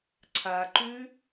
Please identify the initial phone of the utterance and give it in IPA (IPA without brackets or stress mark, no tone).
ǀʰ